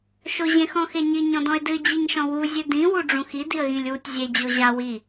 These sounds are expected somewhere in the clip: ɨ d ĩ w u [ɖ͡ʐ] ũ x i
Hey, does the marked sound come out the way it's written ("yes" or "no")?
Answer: yes